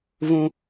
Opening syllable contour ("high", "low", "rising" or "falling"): high